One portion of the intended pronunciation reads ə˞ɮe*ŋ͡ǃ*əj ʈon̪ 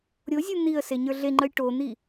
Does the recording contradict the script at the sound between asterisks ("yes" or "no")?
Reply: no